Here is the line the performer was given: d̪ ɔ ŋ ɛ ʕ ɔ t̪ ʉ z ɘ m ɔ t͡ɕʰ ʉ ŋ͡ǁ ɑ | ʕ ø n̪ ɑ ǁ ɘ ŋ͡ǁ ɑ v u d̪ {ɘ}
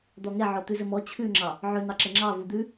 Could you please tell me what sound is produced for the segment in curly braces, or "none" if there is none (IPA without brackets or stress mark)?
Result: ʉ